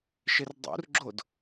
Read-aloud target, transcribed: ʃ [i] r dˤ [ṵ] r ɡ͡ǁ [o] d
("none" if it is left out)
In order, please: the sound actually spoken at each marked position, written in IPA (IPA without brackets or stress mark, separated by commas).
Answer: ɪ, ṵ, o